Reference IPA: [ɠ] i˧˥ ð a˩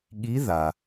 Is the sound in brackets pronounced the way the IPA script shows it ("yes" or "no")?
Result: yes